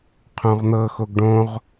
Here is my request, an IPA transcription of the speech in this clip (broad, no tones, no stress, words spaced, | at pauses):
qʰõʁn̪ɤ xoɡɖõʁ